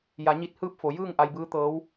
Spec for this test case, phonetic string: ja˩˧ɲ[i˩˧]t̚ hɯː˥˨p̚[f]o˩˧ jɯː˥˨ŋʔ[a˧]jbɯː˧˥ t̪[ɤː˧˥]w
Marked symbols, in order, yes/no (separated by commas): no, yes, yes, yes